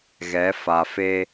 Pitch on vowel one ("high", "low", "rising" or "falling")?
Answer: rising